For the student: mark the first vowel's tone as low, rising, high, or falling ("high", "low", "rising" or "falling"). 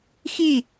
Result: falling